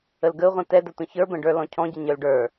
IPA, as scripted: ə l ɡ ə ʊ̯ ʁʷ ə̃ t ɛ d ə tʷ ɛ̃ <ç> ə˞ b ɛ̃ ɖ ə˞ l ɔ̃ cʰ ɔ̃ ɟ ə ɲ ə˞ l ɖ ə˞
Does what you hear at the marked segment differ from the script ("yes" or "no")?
no